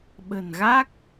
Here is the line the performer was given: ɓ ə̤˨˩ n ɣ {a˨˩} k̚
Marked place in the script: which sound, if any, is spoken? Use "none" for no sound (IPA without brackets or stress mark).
a˦˥